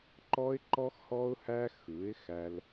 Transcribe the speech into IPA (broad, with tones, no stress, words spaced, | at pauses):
ǃɔ˦ɪ̯ǃɔ˦xhɔ˦ʊ̯hæ˦ xɯ˨˦ɪ̯xæ˧l